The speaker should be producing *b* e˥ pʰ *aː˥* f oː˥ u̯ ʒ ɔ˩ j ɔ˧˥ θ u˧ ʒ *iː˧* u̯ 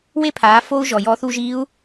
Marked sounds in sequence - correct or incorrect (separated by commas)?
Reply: incorrect, incorrect, incorrect